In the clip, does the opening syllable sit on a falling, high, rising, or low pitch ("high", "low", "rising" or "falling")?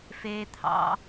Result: high